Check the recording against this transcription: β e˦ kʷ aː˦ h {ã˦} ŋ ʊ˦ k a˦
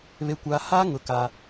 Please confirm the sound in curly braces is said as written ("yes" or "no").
no